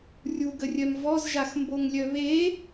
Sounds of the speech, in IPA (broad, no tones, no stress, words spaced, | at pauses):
rʲuɡərʲœm vɔzʒaxmboŋlʲœ βe